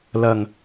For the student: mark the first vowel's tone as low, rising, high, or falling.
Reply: low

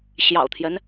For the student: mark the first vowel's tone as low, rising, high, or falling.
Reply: low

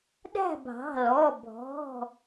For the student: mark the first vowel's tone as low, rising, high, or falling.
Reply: falling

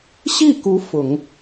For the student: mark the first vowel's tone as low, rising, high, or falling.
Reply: falling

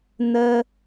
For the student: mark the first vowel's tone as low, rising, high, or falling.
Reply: high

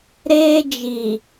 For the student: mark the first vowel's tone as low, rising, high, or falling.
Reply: high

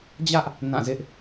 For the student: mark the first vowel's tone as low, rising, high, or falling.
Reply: high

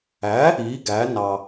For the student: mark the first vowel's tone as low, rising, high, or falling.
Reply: rising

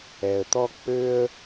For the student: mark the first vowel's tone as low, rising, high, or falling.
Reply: low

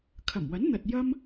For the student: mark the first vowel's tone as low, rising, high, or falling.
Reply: low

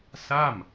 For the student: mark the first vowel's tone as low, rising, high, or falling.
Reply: falling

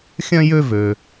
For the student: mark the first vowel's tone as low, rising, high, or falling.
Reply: high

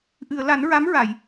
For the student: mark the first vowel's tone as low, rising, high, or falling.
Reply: low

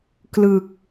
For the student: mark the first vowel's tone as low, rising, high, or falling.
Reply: low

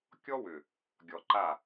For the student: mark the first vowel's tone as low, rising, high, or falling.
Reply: high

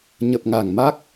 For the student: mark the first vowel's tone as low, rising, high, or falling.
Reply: low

